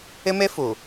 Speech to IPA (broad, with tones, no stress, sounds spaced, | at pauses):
ɪ˦ m e˦ f u˨